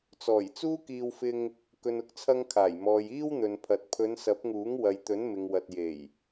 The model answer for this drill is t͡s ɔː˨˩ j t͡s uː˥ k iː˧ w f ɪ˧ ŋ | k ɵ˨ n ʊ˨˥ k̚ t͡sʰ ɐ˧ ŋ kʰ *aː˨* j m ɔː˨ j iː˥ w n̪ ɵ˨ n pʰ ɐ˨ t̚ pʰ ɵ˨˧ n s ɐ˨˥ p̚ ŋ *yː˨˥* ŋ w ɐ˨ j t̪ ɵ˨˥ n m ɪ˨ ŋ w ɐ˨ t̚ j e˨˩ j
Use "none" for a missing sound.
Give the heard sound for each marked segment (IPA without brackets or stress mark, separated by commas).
aː˨˩, uː˨˥